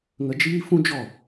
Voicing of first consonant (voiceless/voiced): voiced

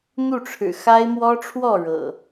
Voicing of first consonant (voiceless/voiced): voiced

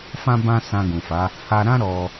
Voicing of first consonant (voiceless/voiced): voiceless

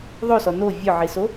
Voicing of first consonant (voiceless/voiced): voiced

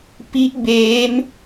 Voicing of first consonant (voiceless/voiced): voiceless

